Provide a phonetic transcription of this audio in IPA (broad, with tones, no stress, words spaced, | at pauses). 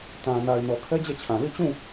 tã˨na˨ɪ̯ nɔ˨kʰɛ˦d͡ʑɛ˦˨t͡ɕʰã˨ li˦˨t͡ɕũ˦˨